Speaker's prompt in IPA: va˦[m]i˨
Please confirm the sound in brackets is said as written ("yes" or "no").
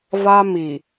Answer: yes